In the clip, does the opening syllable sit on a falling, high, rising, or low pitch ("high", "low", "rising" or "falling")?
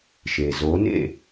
low